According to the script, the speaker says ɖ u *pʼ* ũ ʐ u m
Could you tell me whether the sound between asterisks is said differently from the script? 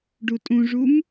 yes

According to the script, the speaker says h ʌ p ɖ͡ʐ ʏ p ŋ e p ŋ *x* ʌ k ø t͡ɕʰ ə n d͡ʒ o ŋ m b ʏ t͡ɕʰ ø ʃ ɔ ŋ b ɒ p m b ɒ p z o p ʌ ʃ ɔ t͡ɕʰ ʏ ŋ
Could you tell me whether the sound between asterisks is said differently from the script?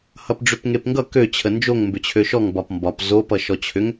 yes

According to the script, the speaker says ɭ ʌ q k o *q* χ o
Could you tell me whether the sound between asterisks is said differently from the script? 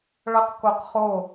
no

